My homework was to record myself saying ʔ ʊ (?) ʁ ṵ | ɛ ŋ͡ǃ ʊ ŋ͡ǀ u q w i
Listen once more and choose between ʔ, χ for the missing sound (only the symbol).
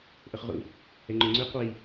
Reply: χ